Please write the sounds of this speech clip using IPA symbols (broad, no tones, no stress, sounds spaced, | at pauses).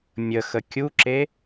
mʲ ə x ə kʲ u ǁ e